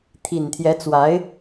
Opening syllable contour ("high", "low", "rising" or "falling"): low